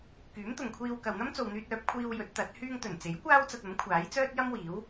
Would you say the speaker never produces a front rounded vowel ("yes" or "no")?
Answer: no